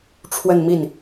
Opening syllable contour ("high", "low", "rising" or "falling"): falling